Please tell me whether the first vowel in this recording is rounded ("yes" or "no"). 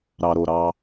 no